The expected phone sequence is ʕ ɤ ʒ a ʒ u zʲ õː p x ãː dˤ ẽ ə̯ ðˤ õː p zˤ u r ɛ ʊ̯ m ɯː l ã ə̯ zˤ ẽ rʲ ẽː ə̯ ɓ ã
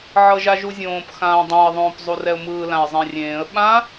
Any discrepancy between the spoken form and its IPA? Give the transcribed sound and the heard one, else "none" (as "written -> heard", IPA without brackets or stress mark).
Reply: none